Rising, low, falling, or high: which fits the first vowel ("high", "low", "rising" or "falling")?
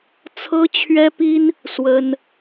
high